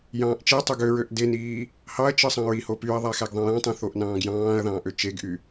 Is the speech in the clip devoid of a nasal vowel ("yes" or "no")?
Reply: no